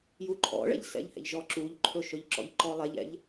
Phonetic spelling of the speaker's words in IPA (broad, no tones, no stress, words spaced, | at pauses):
juǃʰɔ̰ɭɛ̰ʎ sɛ̰ʎhɛ̰ʎʒɔ ǁuʎǃʰɵ ʃɵʎǁɔ̰ʎǃɔlˠɛʎ ɛ̰ʎ